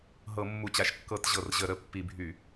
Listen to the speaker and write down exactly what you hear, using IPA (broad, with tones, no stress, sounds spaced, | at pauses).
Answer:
ɦ ɤ˧˩˧ mː u˨˩ t͡ɕ a˨˩ ʃ kː ɤ˧˩˧ t ʑ ɤ˨˩ r ʑ ə˧˩˧ ɾ ə˨˩ pː i˧˩˧ bʱ y˧˩˧